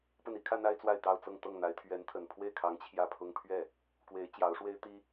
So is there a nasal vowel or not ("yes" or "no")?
no